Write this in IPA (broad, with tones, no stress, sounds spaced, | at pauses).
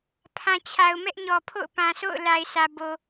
pʰ ã˨ t͡ɕʰ a˨ ʊ̯ m ɛ˦ ʔ ɲ ɔ˨ pʰ o̰˦˨ ʊ̯ p ã˨ s o̰˦˨ ʊ̯ l a˨ ɪ̯ s ä˨ b o˨